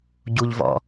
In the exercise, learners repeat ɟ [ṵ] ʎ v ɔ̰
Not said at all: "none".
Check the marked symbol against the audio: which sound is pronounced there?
u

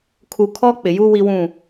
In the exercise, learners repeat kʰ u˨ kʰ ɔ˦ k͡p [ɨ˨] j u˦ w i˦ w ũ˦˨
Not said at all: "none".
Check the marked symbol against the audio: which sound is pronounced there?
ɪ˨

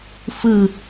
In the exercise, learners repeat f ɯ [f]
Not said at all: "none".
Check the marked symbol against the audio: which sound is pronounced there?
none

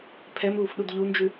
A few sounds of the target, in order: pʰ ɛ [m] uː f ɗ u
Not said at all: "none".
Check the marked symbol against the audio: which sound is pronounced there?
m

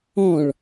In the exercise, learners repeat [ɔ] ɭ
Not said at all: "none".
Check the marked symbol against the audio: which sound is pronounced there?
ɔ̃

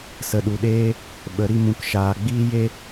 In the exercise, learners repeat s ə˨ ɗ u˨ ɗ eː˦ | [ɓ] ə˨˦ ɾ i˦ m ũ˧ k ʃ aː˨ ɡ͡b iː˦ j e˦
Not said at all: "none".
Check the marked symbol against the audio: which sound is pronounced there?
ɓ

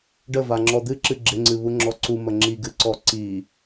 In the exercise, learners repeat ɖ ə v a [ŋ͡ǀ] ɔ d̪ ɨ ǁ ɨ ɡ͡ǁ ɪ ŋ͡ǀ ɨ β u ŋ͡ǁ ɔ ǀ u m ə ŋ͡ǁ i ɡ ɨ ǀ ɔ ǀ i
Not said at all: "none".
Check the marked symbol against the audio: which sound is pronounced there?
ŋ͡ǁ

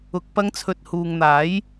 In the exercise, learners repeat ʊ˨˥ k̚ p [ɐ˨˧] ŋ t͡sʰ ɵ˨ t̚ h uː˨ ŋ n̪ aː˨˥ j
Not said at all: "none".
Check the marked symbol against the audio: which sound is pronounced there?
ɐ˨˧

